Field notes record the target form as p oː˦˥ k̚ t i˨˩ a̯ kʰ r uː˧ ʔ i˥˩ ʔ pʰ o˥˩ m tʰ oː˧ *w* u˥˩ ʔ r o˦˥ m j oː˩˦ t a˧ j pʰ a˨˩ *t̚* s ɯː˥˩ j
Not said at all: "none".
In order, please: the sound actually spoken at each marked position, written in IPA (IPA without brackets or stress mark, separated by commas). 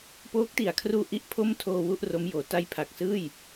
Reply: w, k̚